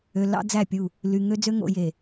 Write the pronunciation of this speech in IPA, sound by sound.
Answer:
ø˨ l ɑ̰˦ d͡z æ˦˨ pʲ u˦˨ | l y˨ ŋ ø˦ d͡z ø˦ ŋ o̰˨ j e˨

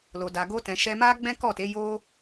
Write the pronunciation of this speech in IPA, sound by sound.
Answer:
l o˨ d a˨ ɡ o˧ t ɛ̃˨ ʃ ɛ˧ m a˦ ɡ͡b ɛ̃˦ k ɔ˦˨ t e˨˦ j o˧

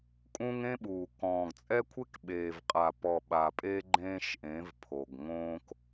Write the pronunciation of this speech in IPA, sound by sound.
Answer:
kʼ ũ˦ ŋ ẽ˦ ɓ uː˨ k ɔ̃ː˨ ɡ t͡sʼ ɛ˦ kʷʰ e˦ k ɓ eː˨ v qʼ a˨ p ɔ˨ ɓ a˨ pʼ e˦ ɡ͡ǃ ẽː˦ ʃ ʔ ẽ˨˦ v pʰ o˨ ɡ ŋ õː˦ k

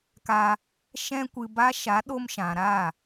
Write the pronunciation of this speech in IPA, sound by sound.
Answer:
k a˧ | ʃ ɛ̃˦ kʷ ɨ˧ b a˦ ʃ a˨˦ ɗ o˧ m ʃ ã˨ ɾ a˦˨

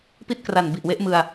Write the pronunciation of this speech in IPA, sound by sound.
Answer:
p i˥˩ t̚ k r a˨˩ n b i˨˩ ʔ w e˦˥ ʔ m ɯ˧ a̯

